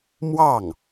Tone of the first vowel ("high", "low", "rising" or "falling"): falling